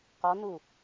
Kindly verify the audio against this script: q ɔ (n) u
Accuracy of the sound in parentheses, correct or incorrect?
correct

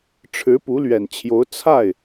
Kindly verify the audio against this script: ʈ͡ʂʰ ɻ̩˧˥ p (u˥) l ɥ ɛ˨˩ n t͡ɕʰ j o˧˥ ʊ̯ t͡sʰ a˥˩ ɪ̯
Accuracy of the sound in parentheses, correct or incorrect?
incorrect: u˧˥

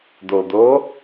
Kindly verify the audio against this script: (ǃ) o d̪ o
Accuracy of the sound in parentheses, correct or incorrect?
incorrect: d̪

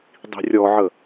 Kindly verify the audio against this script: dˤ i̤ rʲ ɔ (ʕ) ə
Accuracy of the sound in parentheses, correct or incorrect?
correct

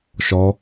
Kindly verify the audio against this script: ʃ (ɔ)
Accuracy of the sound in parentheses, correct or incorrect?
correct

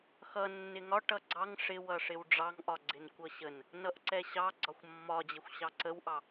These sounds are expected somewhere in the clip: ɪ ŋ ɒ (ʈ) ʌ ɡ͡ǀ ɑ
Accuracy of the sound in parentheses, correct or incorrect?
correct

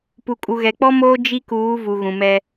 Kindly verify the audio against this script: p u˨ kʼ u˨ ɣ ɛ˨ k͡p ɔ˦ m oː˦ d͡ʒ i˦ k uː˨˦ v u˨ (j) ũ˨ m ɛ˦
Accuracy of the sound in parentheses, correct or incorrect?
incorrect: ɣ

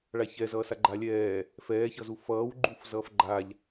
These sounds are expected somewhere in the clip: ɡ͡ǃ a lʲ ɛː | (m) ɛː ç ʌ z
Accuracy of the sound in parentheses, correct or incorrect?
incorrect: f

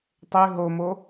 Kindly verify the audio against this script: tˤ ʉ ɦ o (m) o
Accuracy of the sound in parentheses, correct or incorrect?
correct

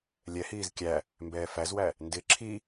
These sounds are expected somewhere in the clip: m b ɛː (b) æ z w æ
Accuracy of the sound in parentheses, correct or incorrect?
incorrect: f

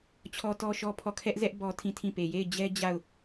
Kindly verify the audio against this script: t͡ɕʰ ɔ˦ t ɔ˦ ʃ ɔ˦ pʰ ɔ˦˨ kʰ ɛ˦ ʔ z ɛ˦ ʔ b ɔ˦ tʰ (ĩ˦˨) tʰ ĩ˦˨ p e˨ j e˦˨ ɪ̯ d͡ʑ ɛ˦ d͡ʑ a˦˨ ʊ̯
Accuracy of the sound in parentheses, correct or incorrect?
correct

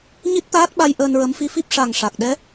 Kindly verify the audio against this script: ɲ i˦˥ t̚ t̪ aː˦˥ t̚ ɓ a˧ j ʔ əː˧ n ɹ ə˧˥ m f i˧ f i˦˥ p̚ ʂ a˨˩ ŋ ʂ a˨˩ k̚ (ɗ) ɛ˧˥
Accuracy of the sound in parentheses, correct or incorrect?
correct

